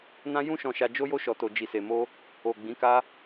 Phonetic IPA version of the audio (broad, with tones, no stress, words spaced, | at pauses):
nã˦ jũ˦ʃɔ̃˧ʃa˧ d͡ʒo˦jo˦ʃɔ˧to˧ d͡ʒi˧se˧mo˦ | o˨ ɡ͡bĩ˨˦ka˦